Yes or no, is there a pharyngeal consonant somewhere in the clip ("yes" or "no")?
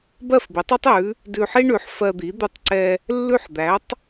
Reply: yes